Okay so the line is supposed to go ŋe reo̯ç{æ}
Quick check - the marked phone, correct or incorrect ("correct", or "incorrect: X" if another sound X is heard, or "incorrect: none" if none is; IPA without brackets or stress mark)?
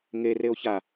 incorrect: a